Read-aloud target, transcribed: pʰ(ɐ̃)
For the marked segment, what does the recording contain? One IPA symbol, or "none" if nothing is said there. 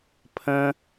ə̃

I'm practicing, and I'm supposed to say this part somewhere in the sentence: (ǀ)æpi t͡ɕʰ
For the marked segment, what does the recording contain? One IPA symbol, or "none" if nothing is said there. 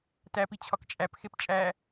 t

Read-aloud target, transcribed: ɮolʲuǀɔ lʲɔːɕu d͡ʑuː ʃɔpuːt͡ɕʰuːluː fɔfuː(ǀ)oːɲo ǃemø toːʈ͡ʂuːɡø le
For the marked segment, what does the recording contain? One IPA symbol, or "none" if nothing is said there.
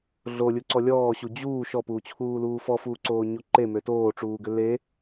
ǀ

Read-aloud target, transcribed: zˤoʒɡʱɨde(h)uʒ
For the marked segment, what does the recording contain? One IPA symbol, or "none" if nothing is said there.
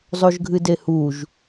h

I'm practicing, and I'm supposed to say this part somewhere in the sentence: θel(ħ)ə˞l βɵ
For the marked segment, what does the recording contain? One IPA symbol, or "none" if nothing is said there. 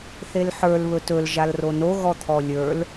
ħ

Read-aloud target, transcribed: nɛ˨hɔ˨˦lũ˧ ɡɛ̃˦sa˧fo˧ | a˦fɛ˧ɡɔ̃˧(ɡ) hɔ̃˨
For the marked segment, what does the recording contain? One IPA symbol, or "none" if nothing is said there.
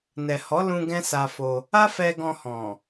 none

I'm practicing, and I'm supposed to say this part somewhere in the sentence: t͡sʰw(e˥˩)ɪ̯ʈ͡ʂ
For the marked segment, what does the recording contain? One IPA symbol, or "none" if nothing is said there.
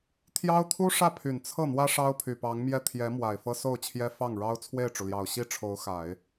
e˥˩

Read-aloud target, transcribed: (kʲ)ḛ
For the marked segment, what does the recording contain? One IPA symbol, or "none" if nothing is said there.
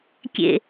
kʲ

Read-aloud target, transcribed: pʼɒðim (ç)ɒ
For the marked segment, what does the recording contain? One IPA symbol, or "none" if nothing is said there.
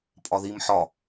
ħ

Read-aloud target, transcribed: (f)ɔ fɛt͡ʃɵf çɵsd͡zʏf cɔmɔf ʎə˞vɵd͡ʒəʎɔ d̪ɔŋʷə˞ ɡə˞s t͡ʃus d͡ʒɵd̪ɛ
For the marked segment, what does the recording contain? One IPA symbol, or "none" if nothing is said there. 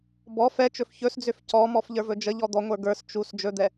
b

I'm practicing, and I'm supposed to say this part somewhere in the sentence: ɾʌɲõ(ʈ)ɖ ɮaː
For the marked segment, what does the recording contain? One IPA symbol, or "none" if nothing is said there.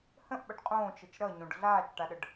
none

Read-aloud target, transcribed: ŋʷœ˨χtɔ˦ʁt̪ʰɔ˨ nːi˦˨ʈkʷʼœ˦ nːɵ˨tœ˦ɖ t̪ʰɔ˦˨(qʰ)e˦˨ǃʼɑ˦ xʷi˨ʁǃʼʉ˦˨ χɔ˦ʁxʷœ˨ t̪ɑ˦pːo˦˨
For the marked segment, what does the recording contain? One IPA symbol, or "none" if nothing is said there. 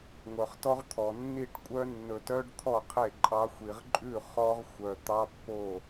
qʰ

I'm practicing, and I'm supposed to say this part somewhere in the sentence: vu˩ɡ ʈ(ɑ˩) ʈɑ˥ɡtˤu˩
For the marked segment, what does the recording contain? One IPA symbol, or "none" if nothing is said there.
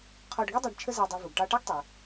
ɑ˧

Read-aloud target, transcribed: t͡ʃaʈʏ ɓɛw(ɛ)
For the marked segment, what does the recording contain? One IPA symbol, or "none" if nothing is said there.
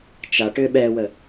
ə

